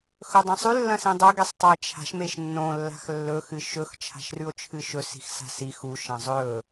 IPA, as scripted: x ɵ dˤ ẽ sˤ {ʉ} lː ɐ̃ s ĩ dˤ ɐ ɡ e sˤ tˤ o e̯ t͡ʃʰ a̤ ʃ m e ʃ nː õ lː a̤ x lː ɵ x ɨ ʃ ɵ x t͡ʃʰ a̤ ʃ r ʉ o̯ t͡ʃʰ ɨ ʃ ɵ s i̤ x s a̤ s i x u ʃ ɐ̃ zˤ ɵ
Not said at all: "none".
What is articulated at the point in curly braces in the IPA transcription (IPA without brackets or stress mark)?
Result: ʉ